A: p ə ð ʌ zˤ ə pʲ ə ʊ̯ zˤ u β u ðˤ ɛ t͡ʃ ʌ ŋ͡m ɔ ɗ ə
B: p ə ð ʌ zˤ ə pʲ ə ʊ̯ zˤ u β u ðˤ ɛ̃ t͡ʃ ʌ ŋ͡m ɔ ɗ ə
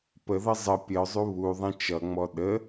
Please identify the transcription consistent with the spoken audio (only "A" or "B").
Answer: B